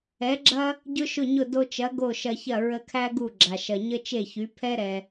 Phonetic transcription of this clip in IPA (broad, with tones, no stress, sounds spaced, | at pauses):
ɛ˩˥ ɡ͡ǁ ɐ˥ | ɟ ʊ˥ ʃ ʊ˥˩ ɲ ʊ˥˩ d o˧ t͡ʃ ɐ˩˥ ɡ o˥˩ ʃ ɐ˧ ç ɐ˥˩ ɹ ə˧ kʰ æ˥ ɡ u˥˩ ɡ͡ǁ a˩ ʃ ɐ˩ ɲ ə˥ t͡ʃ e˥˩ ç y˩˥ pʰ ɛ˥ ɾ ɛ˩